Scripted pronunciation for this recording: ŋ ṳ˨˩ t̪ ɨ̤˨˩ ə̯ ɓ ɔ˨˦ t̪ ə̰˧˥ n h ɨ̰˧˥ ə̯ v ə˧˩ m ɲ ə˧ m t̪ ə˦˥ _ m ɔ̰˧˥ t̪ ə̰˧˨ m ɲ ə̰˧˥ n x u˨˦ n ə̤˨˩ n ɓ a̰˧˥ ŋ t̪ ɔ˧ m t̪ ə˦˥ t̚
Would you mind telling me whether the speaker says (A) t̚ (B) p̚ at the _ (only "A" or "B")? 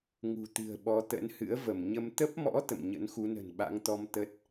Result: B